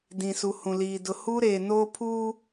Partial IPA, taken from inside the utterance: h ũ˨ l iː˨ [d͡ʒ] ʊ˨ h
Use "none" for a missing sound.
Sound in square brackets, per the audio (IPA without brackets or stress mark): d